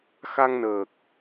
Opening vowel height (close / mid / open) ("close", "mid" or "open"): open